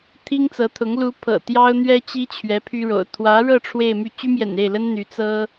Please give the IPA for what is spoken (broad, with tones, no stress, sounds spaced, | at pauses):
t̪ʰ i˥ ŋ t͡s ɤ˧˥ t̪ʰ ʊ˧˥ ŋ l u˧˥ pʰ ɤ̰˨˩ t̪ j ɑ˥ ʊ̯ n̪ ɥ ɛ˥ t͡ɕ i˥ t͡ɕʰ ɥ ɛ˧˥ pʰ y˥ ɻ o̰˨˩ ʊ̯ t̪ʰ w ä˧˥ ɻ ɤ˥˧ ʈ͡ʂʰ w e˥˧ ɪ̯ m y˥˩ t͡ɕ y˥ m j ɛ̰˨˩ n e˥˩ ɪ̯ l ə˥ n n̪ y˧˥ t͡s ɤ˥